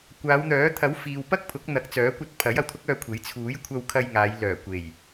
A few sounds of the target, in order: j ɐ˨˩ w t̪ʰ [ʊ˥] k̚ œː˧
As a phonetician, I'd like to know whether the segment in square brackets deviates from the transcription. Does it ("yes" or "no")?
no